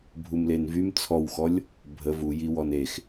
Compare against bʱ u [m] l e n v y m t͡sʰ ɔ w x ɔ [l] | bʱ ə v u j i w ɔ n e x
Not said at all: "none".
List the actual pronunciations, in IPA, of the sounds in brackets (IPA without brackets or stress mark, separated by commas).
m, lʲ